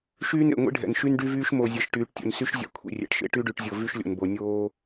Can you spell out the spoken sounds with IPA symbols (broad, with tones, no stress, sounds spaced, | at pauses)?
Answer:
ʃ yː˦ n ḛ˨ ŋʷ ḭ˦ ɖʱ ɛ̰˨ n ʃ y˦ n ɖ y˦ v yː˦ ʃ m o˨ zʲ ɛ˨ ʃ ʈ yː˨ ʈ tʲ o̰˨ n s y˦ ʃ zʲ ɛ̰˨ kʷʰ ḭ˨ rʲ ɛ̰˨ ʈ ʃ ḛ˦ ʈ y˦ ɖ y˨ ʈ zʲ o˨ v y˦ ʃ lʲ o̰˨ n b o˨ nʲ oː˦